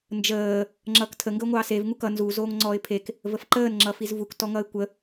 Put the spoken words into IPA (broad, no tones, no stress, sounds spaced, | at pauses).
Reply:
n d͡ʒ əː | ŋ͡ǁ ʌː k tʰ ə ŋ ɡ ə ʊ̯ ŋʷ ɑː s e v ŋ u k ʌ n z u z oː ŋ ŋ͡ǀ ɔː ɪ̯ pʰ e k | v ə f ǃ əː n ŋ͡ǁ ʌ f i z v u k t ɔ ŋ ʌː ɪ̯ kʷ ə